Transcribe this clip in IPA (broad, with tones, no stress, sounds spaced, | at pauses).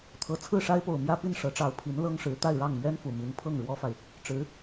t̪ʰ ɤ˨˩ t͡sʰ ɹ̩˥˩ ʂ a˥ ɪ̯ p o˨˩ ʊ̯ m j ä˥ p i˥˩ n ʂ ɤ˧˥ ʈ͡ʂ ɑ˧˥ ʊ̯ pʰ i˧˥ n l ɤ˥ ŋ ʂ ɻ̩˧˥ t̪ a˥˧ ɪ̯ ɻ ɑ˥˩ ŋ m ɥ ɛ˥ n f u˨˩ m i˧˥ n pʰ ɤ˥˩ ŋ ɻ w ɔ˥ f a˨ ɪ̯ | ʈ͡ʂ ɻ̩˧˥